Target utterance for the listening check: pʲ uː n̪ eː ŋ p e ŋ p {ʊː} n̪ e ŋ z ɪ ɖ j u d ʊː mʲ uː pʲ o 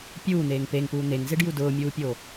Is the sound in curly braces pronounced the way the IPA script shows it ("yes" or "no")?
no